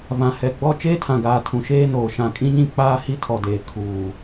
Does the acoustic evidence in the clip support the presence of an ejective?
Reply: yes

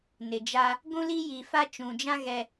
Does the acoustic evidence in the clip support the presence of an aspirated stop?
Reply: no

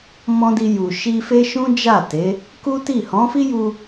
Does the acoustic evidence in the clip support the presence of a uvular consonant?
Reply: no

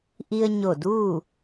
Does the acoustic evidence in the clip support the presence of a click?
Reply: no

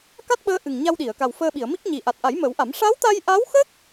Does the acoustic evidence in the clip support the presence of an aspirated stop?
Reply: no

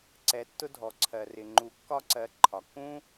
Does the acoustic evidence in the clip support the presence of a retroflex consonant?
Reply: no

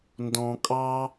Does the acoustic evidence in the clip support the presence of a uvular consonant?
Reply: no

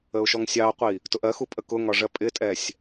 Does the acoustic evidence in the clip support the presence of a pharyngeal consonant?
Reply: no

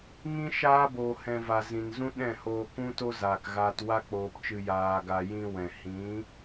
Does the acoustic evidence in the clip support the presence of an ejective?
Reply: no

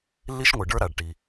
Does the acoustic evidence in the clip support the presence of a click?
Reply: no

